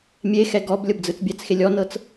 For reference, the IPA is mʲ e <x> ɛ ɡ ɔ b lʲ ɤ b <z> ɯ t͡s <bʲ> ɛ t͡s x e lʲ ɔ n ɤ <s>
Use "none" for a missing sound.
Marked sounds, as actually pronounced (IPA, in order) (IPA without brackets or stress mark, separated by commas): x, d͡z, bʲ, t͡s